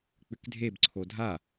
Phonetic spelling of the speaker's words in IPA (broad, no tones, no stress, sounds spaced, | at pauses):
k͡p ʏ k dʱ e b ǀʰ o dʱ a